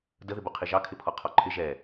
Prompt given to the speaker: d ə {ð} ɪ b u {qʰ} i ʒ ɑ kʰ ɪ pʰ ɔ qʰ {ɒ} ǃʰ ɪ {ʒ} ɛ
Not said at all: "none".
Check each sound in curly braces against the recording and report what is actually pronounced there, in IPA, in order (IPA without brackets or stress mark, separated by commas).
ð, qʰ, ɒ, ʒ